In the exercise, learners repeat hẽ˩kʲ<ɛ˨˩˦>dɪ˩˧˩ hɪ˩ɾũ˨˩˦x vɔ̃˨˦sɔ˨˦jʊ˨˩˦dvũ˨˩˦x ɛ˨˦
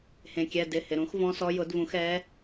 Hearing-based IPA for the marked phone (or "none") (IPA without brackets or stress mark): ɛ˩˧˩